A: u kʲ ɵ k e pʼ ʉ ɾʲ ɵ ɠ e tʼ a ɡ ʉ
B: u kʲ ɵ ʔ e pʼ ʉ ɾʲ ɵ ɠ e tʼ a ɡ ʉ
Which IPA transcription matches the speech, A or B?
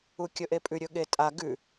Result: B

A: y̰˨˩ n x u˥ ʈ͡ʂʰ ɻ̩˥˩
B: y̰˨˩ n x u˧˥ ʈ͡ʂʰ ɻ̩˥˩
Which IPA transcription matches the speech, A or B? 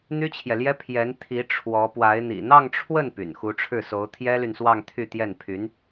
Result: B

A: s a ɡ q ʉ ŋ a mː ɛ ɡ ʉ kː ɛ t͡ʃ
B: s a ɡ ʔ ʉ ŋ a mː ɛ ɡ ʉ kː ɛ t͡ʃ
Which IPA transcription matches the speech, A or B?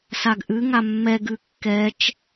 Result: B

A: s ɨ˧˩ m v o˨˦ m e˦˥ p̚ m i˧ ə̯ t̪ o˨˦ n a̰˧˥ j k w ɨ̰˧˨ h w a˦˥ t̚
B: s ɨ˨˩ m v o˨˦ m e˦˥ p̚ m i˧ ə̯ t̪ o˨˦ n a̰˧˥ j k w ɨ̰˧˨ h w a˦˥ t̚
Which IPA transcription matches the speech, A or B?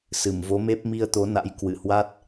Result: A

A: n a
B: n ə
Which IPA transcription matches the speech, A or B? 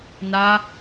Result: A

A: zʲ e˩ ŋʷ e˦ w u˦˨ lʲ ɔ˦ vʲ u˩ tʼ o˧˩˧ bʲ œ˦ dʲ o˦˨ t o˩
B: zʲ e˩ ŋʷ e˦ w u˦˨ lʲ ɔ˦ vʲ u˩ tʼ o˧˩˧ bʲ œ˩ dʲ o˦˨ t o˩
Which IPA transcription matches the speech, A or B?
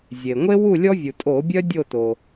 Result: A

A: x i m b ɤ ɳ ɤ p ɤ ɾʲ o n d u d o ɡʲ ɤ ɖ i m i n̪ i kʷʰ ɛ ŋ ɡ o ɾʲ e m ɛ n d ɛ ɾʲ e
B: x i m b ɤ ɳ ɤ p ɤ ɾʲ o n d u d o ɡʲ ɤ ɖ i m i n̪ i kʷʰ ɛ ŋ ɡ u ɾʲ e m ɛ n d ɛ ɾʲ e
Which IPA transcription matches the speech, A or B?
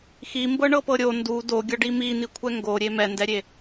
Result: A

